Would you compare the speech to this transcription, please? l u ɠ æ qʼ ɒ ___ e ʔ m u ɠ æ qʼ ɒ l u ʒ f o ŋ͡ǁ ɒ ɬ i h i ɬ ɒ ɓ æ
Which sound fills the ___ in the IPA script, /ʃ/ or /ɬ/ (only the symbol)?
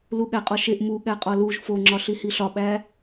ʃ